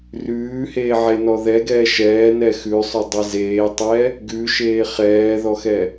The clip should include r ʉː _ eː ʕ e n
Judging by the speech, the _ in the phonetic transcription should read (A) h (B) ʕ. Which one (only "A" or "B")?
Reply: A